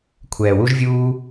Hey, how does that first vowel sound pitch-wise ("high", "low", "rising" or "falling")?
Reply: low